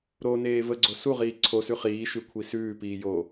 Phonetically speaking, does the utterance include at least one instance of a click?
yes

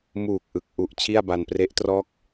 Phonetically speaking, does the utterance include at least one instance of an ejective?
no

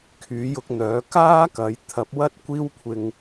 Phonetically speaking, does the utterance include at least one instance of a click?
no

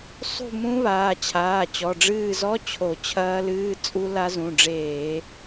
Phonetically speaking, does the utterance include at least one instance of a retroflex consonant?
yes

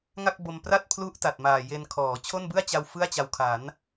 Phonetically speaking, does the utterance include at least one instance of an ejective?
no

